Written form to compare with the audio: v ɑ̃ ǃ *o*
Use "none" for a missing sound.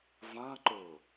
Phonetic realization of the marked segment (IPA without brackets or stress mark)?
o